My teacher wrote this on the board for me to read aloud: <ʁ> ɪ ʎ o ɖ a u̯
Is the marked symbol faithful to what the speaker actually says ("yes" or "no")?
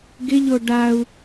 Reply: no